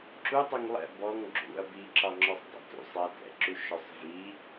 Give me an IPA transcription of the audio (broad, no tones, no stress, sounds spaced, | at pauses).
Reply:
ǁ u tˤ u ŋ lˠ ɛ̰ b ɔ ŋ ɡ͡ǁ ṵ ɐ̯ b i ǁ ɒ ŋ͡ǁ ɔ sˤ dˤ ɛ̰ t ṵ sˤ ɜ t ɛ̰ ǁ u ʃ ɔ sˤ v i